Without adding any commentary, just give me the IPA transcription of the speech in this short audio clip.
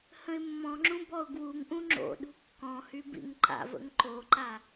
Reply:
h ə̃ ɪ̯ mː ɔ̃ ŋ͡ǁ ũ b ɔ ʊ̯ ɡ w u ŋ ʔ ũ ŋ͡ǁ o̰ ɗ ṳ kː ɔ̃ h y b ḭ ŋ ǃ a̰ v ə̰ ŋ ǃ o ǃ a

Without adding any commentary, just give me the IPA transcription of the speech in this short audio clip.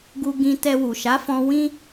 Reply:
ɡ u˧ ɡ ĩ˧ t ɛ˧ w u˨ ʃ a˨˦ f ɔ̃˧ w ĩ˦

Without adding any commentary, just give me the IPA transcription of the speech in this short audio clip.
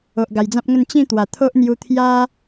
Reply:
o˨ ʔ ɡ a˨˩ j d͡z ã˦ p̚ ŋ ə˥˧ n t͡ɕ ĩ˥˧ t̪ w a˨˩ t̪ʰ o˦ ʔ n̪ j u˧ t̪ʰ j a˦

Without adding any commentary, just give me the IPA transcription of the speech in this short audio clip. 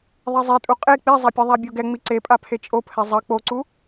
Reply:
ðˤ ɛ zˤ e tʼ u qʼ e k͡p i zˤ a pʲ ɛ ðˤ a bʲ o ɡ ɛ ŋ͡m i ǀ e pʼ a pʰ e t͡ʃʼ o pʰ ɛ zˤ ʌ k͡p o ǀ u

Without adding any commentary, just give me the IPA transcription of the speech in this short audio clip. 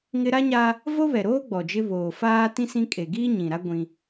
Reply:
ŋ ɪ˦ ɾ a˦ ɲ a˦ | v o˦ β ɛ˨ ɾ oː˦ ɡ͡b ɔ˨ d͡ʒ ɪ˦ β oː˨ f aː˦ t ĩ˦ s ĩ˦ kʼ e˨ ɡ iː˦ ɲ ĩ˨ ɾ a˦ ɡʷ ĩ˦

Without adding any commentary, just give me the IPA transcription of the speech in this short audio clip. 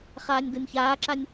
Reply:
χ aː nʲ d ɤ nʲ ç aː ǁ a nʲ

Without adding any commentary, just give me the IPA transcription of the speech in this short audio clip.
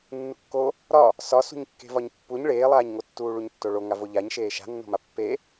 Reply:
nː u kː o | ɾ ɒ | s ɒ s ṳ ɲ kː e̤ v ɒ ɲ pː u ɲ ɭ eː lˠ aː ɲ ŋ o tː uː ɭ u ɲ tː o ɭ o ŋ a v o ʎ a ɲ ʃ eː ʃ a̤ nː o̤ m a pː e

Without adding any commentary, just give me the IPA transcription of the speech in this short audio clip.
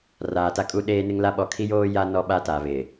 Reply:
r aː˨ t a˦ kʼ u˦ ɗ eː˦ n ɪ˦ ŋ l a˦ ɓ ɔ˦ kʰ i˦ j oː˦ j a˦ n ɔ˦ ɓ a˦ t a˨ β ɪ˨

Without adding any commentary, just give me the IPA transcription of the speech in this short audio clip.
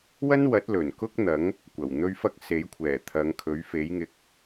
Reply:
w ɐ˥ n w ɐ˨˥ t̚ l ɵ˨˩ n k ʊ˥ k̚ n̪ ɐ˨˥ ŋ | kʷ ɐ˨˩ w n̪ ɵ˥ ɥ f ɐ˥ k̚ s e˨˥ j kʷʰ ɛː˨˩ t̪ʰ ɐ˨˧ ŋ kʰ ɵ˨˥ ɥ f e˨˥ j ŋ ɪ˨ k̚

